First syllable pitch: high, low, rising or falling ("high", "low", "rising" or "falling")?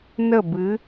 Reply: falling